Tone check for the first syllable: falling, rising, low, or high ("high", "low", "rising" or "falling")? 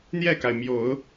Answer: falling